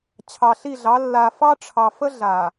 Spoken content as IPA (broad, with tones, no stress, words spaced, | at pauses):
t͡ɕʰɑ˨ɬi˦˨ɮɑ˨˦ lːa˨fɑ˦ ʈ͡ʂʰɑ˨fə˦ ɮa˨